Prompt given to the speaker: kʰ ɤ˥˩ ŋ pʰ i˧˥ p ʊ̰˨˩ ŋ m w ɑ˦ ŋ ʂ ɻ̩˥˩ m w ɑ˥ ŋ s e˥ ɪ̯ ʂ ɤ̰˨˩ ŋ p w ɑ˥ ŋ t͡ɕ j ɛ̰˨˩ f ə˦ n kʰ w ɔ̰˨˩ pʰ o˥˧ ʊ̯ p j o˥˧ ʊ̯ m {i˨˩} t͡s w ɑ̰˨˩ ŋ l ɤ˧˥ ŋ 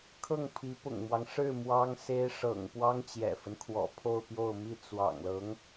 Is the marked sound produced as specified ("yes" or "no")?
no